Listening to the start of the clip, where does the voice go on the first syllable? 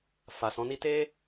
low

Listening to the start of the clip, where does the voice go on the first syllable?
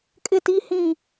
falling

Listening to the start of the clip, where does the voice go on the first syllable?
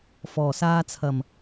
low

